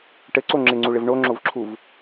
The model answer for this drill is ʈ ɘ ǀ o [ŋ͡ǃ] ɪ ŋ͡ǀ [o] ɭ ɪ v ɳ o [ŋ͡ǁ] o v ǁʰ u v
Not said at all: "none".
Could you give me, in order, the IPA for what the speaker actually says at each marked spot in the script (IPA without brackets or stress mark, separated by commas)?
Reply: ŋ͡ǁ, u, ŋ͡ǁ